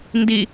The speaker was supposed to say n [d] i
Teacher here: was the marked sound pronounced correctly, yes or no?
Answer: yes